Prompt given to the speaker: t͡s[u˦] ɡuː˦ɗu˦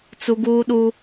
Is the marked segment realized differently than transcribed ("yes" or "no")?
no